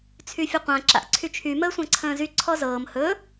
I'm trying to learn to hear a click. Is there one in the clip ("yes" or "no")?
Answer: yes